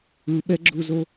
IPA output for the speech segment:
ɯ ɓ ɛ ɡ͡ǁ u z o

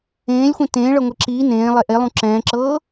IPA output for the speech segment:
ẽː lʲ xʷ ẽ t ẽː ɭ ɤ ŋʷ e ǁ iː n ẽː lˠ e ʔ e lˠ ũ ǁ ɛ̃ː ǁ ɤː

